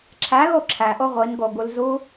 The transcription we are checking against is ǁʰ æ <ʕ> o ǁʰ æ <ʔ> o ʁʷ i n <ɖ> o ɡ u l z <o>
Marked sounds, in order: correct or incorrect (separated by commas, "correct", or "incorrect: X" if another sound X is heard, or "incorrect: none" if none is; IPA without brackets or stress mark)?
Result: incorrect: ɣ, correct, incorrect: ɡ, incorrect: u